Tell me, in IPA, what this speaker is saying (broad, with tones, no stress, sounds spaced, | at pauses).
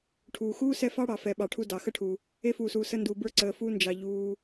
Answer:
ʈʰ uː˩ x uː˥ s ɛ˦ f ɑ˥ ɽ ɑ˨ f ɛ˨ ɓ ɑ˨ ʈʰ u˦ d ɑ˨ x ə˦ ʈʰ u˩ | e˦ f uː˩ s uː˩ s ə˦ n d uː˨ b ə˞˥ ǀ əː˨ f uː˥ n d͡ʒ ɑ˨ ʎ uː˦